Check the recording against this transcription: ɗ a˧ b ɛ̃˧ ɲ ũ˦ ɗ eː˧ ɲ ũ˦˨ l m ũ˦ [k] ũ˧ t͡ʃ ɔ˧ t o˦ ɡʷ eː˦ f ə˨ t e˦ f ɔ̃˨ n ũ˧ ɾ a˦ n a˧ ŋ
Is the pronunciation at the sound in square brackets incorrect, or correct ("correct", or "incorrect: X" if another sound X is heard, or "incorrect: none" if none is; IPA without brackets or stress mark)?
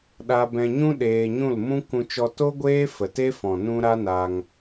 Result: correct